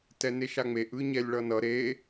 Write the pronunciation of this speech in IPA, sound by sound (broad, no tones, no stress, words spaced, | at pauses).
tɛneʃaŋ͡meʔ ɯɲɛlʲɭʌnʌ ɾe